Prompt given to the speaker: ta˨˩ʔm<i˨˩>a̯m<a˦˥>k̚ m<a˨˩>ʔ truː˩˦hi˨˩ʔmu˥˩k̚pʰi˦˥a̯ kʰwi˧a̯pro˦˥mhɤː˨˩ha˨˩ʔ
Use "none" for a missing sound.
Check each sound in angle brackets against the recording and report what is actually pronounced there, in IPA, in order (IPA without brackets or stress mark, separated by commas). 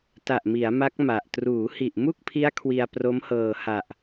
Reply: i˩˦, a˦˥, a˨˩